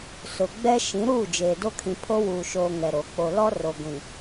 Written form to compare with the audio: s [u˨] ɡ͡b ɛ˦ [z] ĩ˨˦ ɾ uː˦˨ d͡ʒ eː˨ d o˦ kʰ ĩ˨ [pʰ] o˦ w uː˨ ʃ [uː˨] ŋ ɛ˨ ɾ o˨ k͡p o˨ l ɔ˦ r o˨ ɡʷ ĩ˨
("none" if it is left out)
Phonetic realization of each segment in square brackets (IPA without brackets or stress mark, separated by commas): ʊ˨, ʃ, pʰ, oː˨